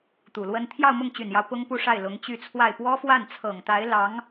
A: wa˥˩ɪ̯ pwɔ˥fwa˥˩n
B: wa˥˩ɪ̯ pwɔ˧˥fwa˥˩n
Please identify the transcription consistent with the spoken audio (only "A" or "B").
A